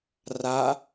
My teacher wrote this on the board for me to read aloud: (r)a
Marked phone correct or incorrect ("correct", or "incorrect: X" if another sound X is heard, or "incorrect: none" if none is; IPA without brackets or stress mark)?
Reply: correct